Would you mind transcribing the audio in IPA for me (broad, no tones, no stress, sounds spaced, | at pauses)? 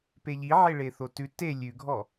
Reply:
p e ʎ i ʕ e ɭ e θ o t ʉ t e lʲ ʉ ɡʱ ɔ